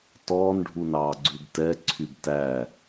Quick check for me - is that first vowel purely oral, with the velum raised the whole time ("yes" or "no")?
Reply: yes